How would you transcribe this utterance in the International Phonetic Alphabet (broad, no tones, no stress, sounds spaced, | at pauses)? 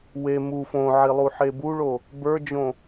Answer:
w e m u f õ ʕ i lˠ u ħ e b u ɭ o | b ə˞ d͡ʒ õ